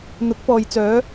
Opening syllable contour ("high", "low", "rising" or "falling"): rising